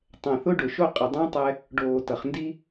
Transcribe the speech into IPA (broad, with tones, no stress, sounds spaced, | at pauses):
tˤ ɛ̃˨ θ ʊ˦ ɖ ʊ˨ ʃ o˦ qʼ ʌ˨ dˤ ə̃ː˦ tˤ ɛ˦ | ɖ oː˨ t ʌ˨ χ n d i˦